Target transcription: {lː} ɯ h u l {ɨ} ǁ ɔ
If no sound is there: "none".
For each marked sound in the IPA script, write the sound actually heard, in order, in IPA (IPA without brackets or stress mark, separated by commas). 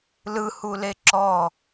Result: l, e